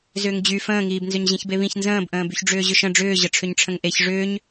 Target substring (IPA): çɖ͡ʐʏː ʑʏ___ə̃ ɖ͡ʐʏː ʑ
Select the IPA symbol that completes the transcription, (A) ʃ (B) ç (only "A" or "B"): A